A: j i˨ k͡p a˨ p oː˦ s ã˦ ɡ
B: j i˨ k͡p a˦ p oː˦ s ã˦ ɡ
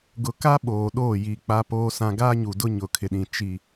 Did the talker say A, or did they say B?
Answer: B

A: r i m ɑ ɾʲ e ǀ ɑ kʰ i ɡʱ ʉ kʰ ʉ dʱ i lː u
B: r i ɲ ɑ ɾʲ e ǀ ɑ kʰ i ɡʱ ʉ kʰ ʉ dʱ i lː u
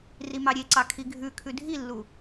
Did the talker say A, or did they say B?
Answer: A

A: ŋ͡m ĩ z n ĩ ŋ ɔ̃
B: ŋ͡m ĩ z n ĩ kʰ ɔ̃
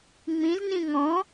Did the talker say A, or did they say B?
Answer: A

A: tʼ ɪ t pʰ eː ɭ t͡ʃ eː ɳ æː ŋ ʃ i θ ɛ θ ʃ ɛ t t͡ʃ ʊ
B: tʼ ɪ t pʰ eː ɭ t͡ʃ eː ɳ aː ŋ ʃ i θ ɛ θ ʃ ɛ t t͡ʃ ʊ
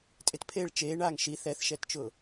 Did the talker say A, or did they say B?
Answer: B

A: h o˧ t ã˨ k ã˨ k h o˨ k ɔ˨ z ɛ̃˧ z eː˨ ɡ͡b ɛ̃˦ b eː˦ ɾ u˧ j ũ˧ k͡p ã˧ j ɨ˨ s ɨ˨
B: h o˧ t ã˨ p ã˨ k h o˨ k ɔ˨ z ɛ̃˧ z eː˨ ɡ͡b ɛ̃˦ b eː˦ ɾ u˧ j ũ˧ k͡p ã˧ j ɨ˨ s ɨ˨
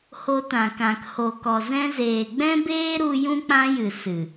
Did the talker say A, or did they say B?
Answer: A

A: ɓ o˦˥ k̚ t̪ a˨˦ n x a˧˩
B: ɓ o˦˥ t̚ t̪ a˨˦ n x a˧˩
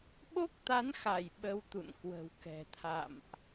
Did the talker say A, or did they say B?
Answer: A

